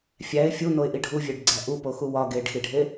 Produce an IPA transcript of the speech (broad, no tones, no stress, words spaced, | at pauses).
fʲæɪ̯ fʲunoɪ̯ʔi ɖʱuvʲeɖɡ͡ǀæ ʔupoxu wɒ ɡeɖxiɖʱe